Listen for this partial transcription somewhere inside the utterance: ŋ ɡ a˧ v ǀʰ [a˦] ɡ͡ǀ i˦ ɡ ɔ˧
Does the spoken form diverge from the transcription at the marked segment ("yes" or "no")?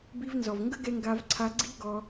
yes